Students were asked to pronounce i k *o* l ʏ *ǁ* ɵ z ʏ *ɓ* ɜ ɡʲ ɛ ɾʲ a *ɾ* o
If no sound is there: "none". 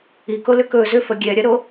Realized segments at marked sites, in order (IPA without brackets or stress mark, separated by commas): o, k, f, ɾ